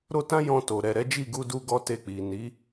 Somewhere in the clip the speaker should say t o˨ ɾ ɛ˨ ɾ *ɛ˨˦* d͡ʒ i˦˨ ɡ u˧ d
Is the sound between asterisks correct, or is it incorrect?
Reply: correct